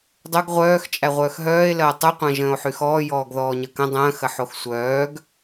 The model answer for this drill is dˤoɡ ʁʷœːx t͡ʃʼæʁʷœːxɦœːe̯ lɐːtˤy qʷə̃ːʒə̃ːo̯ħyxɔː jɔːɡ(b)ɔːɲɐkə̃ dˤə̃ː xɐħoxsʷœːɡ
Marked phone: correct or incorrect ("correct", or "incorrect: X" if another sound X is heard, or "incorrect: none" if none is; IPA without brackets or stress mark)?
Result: incorrect: ð